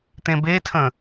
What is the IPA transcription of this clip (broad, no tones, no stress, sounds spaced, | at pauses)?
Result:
t̪ ẽ b e tʰ ə̃